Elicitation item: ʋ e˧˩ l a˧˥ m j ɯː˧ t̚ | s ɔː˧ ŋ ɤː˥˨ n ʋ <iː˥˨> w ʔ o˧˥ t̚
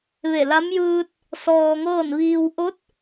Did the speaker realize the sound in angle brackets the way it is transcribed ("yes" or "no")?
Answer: no